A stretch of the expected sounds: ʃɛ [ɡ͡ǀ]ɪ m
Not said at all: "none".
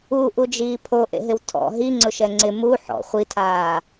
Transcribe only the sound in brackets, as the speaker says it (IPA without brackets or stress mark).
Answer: ŋ͡ǀ